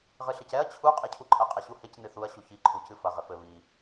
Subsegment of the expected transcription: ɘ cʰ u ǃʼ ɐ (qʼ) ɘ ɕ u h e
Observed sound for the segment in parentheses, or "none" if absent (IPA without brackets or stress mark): qʼ